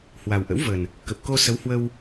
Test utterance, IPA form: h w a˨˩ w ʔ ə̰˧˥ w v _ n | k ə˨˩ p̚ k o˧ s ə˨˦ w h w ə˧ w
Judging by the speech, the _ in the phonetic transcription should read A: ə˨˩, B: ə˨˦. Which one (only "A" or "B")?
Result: A